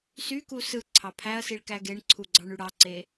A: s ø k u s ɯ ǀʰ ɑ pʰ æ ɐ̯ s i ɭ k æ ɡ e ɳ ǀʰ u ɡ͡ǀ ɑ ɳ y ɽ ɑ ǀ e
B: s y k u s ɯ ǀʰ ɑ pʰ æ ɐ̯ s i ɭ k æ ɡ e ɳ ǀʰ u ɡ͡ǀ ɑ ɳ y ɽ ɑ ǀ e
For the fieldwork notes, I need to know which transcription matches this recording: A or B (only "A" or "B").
B